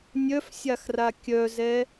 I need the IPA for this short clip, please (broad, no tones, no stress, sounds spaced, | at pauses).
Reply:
nʲ œ f sʲ a x r a kʲ œ z ɛ